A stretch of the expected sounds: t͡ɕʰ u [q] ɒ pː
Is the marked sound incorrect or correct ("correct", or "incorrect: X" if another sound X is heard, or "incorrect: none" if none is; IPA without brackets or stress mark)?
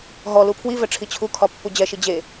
incorrect: kʰ